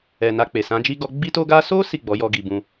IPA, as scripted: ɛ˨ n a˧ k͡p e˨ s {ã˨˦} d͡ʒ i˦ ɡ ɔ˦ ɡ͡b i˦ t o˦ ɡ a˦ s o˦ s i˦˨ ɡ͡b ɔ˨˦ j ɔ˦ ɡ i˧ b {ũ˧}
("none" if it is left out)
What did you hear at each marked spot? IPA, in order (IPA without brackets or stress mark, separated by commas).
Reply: ã˨˦, ũ˧